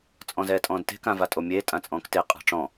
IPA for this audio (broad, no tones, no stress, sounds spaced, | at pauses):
t͡sʼ ɔ̃ z ɛː tʼ ɔ̃ː d t e̤ k ã v a tʼ o mʲ eː tʼ ã t͡sʼ ɔ̃ː k t e qʼ a̤ ʈ͡ʂ ɔ̃